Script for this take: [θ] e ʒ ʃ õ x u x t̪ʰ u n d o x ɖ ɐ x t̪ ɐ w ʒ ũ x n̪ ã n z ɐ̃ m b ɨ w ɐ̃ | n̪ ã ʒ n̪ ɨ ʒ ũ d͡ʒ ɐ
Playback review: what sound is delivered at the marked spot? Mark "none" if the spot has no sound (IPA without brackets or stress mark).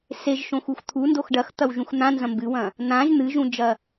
s